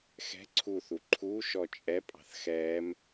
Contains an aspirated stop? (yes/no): yes